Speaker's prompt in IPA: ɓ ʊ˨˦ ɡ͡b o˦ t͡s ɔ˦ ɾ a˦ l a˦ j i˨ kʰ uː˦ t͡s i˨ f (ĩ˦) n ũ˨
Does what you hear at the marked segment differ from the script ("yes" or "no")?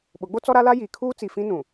no